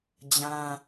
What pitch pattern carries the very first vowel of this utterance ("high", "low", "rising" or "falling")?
high